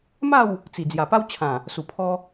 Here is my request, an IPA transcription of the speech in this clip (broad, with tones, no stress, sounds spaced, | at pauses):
m a˥˧ w | t͡s i˨˩ d͡z j a˨˩ p a˦ w t͡ɕʰ ã˨˩ | s u˨˩ pʰ ɔ˧